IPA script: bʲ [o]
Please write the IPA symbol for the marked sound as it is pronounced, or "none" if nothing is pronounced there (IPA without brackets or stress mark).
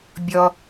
ɔ